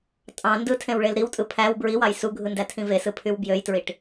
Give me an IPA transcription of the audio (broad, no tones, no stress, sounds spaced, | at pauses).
tʼ ɑ̃ n d ɯ tʰ ẽ w ɭ e l ɾ i w tʼ ɯ pʰ æ w b ɹ i w ɑ j s u ɡʱ ɯ n d æ tʰ ĩ v e s ɯ pʰ y w b j ø j t ɹ i ʈ